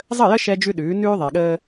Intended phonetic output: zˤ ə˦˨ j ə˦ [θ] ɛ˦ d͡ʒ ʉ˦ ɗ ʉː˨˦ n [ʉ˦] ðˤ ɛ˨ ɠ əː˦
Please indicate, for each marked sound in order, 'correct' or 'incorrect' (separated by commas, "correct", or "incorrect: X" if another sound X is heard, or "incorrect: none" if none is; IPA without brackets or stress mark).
incorrect: ʃ, incorrect: ʉː˦